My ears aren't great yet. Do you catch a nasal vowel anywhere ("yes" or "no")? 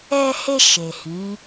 yes